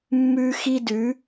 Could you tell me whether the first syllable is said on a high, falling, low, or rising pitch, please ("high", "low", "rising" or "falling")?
high